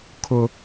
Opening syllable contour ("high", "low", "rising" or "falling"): high